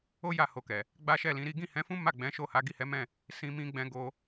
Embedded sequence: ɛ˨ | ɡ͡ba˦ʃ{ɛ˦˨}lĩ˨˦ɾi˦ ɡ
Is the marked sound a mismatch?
no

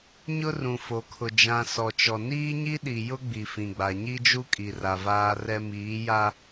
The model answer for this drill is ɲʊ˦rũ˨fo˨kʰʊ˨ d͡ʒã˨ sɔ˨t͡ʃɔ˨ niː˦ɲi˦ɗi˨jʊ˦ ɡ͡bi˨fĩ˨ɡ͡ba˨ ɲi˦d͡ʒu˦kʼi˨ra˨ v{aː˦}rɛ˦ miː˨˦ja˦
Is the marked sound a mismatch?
no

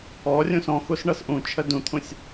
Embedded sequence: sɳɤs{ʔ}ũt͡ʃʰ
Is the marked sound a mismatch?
no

